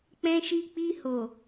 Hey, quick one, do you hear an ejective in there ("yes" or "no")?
no